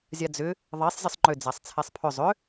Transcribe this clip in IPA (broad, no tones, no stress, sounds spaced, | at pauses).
zʲ a d͡z ʏ | ðˤ e sˤ zʲ ə sˤ ŋ͡ǃ ʏ d͡z a sˤ t͡sʰ e sˤ pʰ ʏ zˤ ʏ